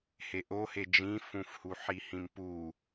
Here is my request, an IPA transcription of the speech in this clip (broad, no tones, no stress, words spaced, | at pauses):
heʔohe d͡ʒĩfũfhu ħihĩmpu